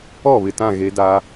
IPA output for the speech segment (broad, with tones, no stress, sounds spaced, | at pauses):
ɔ˦˨ β ɪ˨ t ã˦˨ ɣ e˦ d a˦